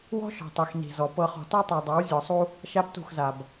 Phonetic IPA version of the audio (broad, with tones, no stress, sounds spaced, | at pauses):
w ɔ̤˦ ʃ ɔ̤˨ tˤ e˨ x n i̤˨ z ɔ˨ p ɤ˨ χ ɔ̤˨ t ɔ˦ tˤ e˨ dˤ a˨˦ w zʲ ɔ˨ sˤ u˦ | ʃ a˦ b t ṳ˦˨ x z a˨ b